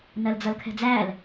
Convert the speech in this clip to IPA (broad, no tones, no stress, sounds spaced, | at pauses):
n ɜ l d͡z ʌ l kʰ ɛ̤ d͡z æ l